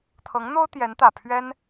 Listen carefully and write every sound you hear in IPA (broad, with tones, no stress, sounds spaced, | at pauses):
t̪ʰ ɤ˧˥ ŋ n̪ o˥ ʊ̯ t̪ j ɛ˧˥ n t̪ ä˨˩ pʰ ɥ ɛ˥ n